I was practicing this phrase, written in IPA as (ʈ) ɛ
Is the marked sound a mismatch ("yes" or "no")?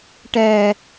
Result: no